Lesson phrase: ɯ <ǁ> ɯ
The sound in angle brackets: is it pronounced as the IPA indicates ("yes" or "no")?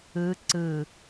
no